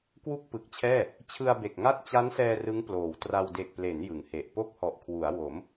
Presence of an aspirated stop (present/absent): present